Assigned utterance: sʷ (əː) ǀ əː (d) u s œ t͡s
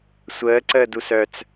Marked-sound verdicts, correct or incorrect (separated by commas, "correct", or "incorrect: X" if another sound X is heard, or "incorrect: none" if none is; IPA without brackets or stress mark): correct, correct